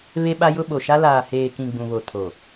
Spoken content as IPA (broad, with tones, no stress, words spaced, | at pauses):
βe˦ɓa˦jʊ˦ ɓo˨ʃa˦ laː˨heː˨kĩ˨ ɡ͡bũ˨βo˨ tʰo˨